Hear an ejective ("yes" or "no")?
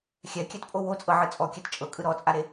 yes